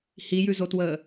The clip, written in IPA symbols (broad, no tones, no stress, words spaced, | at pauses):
hijʉzotwəː